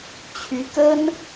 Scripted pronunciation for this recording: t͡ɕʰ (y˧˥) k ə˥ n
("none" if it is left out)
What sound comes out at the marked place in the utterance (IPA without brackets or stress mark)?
y˧˥